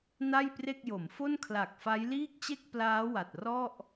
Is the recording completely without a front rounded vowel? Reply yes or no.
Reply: yes